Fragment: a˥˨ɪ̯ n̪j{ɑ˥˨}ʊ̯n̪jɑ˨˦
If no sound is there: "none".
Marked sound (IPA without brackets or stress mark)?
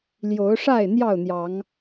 ɑ˥˨